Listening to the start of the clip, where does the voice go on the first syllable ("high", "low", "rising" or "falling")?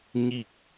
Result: falling